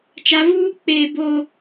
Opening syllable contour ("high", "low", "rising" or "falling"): rising